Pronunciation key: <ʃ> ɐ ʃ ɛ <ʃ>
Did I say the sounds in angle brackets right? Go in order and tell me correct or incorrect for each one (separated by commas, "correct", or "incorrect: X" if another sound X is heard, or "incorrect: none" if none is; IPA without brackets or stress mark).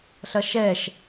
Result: incorrect: ɬ, correct